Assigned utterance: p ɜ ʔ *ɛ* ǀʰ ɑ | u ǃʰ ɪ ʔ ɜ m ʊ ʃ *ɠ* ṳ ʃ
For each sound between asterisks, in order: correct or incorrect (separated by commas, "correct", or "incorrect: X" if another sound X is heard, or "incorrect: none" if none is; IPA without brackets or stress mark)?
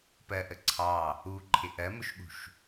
incorrect: ə, correct